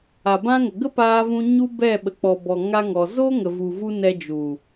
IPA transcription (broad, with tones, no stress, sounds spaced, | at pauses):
a˨ b ã˦ ŋ ə˨ ɡ ə˦ p aː˧ v ũ˧ ɲ u˦ b ɛ˦˨ ɓ ə˨ k͡p ɔ˨ b ɔ˨ ŋ a˦ ŋ ɔ˧ z oː˦ ŋ ə˨ v u˨ v u˧ n ɛ˧ d͡ʒ u˨